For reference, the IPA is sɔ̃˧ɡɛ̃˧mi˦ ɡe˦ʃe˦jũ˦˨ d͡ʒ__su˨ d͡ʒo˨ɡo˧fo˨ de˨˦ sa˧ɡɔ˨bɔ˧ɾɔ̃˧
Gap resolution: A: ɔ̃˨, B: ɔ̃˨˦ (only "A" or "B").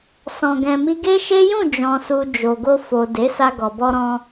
A